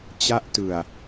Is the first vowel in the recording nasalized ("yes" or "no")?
no